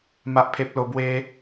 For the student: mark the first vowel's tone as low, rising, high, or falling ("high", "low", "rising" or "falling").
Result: low